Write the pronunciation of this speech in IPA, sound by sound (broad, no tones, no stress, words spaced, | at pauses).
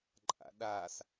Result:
ǃʼa̰ɗas